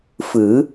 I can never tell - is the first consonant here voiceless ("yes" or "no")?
yes